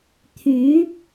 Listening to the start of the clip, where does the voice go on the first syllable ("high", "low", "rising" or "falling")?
rising